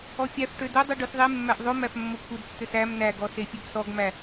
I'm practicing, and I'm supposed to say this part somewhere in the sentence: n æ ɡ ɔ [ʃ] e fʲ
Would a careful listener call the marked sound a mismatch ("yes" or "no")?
yes